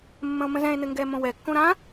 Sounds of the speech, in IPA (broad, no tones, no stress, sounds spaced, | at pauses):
mː ə̃ o̯ m ə̃ z ɛ̃ e̯ n ɘ ŋ ɡ ɛ m õ w ɛ kː õ ɾ ã